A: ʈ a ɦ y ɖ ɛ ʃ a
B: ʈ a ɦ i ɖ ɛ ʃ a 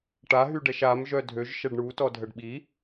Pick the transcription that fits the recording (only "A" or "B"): A